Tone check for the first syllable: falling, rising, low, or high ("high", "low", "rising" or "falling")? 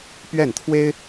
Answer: falling